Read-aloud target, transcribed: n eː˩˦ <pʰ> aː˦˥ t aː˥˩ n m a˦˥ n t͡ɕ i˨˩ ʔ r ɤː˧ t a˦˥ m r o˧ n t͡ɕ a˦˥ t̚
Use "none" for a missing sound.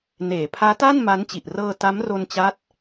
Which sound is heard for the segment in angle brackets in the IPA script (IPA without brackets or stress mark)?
pʰ